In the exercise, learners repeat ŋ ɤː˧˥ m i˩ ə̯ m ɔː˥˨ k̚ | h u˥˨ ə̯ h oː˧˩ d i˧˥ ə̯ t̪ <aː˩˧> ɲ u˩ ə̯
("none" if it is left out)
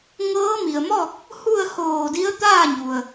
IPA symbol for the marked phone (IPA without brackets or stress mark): aː˥˨